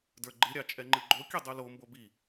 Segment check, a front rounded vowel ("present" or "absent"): absent